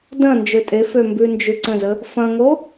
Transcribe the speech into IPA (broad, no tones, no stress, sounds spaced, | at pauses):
d ɐ̃ n d͡ʒ ø tʼ e f ø m b ʉ n d͡ʒ ʉ ǀ ə̃ z ə | f ɐ̃ ŋ o